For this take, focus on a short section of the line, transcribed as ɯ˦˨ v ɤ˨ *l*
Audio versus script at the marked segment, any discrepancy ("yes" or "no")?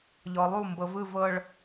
yes